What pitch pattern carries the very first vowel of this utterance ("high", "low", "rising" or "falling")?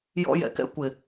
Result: high